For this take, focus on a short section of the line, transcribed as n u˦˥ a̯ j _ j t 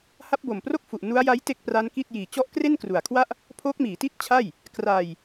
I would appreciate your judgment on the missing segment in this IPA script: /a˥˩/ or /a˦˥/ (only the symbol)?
a˦˥